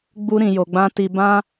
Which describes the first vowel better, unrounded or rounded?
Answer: rounded